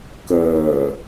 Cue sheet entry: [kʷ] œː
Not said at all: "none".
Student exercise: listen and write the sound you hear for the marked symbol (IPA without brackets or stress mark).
k